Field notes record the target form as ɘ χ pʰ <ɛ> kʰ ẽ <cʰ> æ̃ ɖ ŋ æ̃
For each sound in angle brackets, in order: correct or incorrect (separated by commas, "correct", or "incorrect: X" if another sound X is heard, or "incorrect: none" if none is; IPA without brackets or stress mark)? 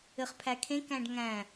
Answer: incorrect: æ, incorrect: k